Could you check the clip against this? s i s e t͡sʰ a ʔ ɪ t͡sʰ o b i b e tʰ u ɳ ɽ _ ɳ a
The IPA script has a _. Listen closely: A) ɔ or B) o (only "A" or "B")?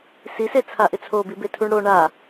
B